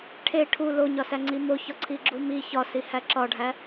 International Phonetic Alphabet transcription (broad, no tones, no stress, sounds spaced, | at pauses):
ʈʰ e ʈʰ u l o ɲ ɒ s æ ŋ͡ǀ i m o ç ɒ ǀʰ i ɡ͡ǁ u m i ç ɒ s i h æ ǁ ɒ ɖʱ æ